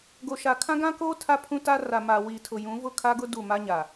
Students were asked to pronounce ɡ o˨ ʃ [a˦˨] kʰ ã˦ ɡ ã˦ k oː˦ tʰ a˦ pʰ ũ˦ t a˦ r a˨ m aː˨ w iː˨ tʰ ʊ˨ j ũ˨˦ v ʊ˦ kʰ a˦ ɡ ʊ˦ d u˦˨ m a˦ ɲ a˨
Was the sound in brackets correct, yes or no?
no